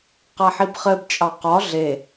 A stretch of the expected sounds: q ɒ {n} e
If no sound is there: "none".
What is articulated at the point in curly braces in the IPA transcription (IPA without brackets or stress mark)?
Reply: ɮ